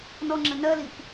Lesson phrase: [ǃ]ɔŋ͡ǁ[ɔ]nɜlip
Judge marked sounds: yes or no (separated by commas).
no, no